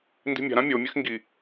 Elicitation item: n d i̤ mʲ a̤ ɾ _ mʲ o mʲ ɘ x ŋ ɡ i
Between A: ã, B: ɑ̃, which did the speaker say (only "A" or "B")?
A